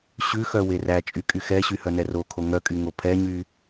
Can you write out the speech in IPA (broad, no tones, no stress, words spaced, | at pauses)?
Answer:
ɕʉxœ weræt͡ʃʼy kʼyxɛɕy hœnɛrokʰo ŋœkʼy ŋopʰɛɲy